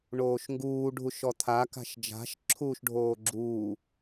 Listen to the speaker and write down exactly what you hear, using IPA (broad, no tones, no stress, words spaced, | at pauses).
ɳoːʃŋɡuː ɖʱuʃɔt̪ʰa ka̤ʃd͡ʒa̤ʃ ǁʰuːʃɖʱoːɡ͡ǁuː